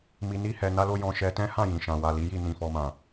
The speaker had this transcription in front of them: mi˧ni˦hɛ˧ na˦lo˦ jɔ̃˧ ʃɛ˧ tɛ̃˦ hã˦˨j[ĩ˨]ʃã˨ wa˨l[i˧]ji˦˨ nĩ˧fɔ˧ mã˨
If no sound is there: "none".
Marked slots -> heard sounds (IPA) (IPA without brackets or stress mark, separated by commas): ĩ˨, i˨˦